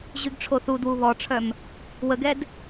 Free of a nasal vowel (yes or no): yes